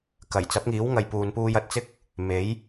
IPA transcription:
k ɐ˨˩ j t͡s ɐ˨˥ p̚ ŋ iː˨˥ w ŋ ɐ˨ j p uː˨ n p uː˧ j ɐ˨ t̚ t͡s ɪ˥ k̚ | m e˨˥ j

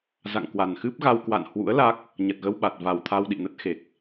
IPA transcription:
z a̰˧˨ ŋ k w a˨˩ n x ɨ˦˥ p̚ ɣ a˧ w k w a̰˧˨ n h w ṵ˧˥ ə̯ l a˦˥ k̚ | ɲ ə˨˩ t̚ ɣ ə˧ w ɓ a˨˩ t̚ v a˨˩ w t̪ʰ a˧ w ɗ ḭ˧˨ n ə˦˥ t̚ x e˨˩ k̚

